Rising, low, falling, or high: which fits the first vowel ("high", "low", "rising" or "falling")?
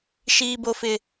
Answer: high